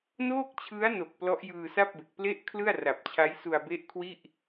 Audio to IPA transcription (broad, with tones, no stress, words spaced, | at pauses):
noː˥˩k̚t͡ɕʰɯ˦˥a̯no˨˩k̚ plɔ˦˥ʔjɯː˧sa˥˩p̚be˨˩k̚ ple˦˥ʔ kʰlɯ˥˩a̯ra˨˩p̚t͡ɕʰa˦˥j su˧a̯be˦˥ʔkʰwi˥˩ʔ